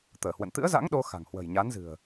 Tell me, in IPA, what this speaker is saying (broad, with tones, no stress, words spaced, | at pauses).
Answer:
t̪əː˧˩hwə̰˧˨n t̪ɨ̰˧˥ə̯za̰˧˥ŋ ɗo˧ xa̤˨˩ŋhwə̤˨˩j ɲa˨˦nzɨ̤˨˩ə̯